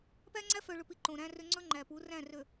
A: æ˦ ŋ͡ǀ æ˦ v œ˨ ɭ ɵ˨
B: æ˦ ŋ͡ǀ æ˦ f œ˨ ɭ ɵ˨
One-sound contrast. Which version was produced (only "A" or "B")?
B